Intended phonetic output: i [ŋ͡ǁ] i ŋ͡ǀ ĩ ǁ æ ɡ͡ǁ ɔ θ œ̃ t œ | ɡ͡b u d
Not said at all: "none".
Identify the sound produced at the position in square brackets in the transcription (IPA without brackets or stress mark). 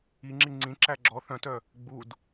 ŋ͡ǁ